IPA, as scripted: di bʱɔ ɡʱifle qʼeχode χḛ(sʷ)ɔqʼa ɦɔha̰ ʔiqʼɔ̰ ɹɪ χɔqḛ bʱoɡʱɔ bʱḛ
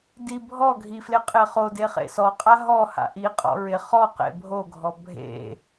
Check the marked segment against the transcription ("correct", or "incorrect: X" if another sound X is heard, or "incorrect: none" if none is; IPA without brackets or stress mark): incorrect: s